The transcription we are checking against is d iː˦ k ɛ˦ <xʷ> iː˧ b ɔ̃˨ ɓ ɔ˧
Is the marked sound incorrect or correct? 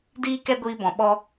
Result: incorrect